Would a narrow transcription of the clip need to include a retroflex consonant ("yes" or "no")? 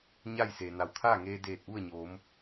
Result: no